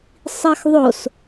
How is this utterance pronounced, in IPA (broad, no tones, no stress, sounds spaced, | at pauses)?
sˤ i x ðˤ o s